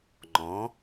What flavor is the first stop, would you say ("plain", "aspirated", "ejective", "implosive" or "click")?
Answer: click